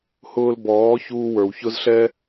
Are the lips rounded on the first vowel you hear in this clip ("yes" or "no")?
yes